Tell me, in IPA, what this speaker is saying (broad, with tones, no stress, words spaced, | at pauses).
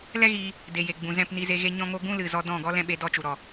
lɛ˦ɣiː˧ | de˨ je˨ ɡ͡bũ˨zɛ̃˦˨pni˧ze˧ ɣe˧ɲɔ̃˧ŋo˧ ɡũ˦lɨ˨zɔ˧ dɔ̃˦˨ ɡɔ˦ lɛ̃˧ ɓe˧dɔ˦˨t͡ʃu˨ɾɔ˨